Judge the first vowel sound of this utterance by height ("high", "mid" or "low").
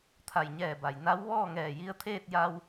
low